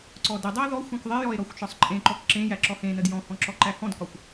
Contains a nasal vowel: yes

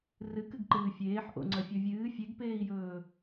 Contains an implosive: no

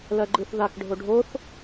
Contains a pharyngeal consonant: no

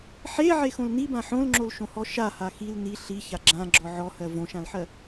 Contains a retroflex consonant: no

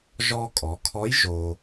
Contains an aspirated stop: yes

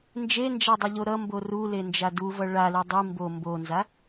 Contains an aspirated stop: no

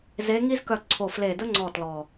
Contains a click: yes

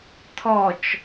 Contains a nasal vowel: no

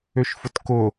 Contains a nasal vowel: no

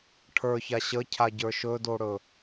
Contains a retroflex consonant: yes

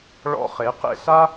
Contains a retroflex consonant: yes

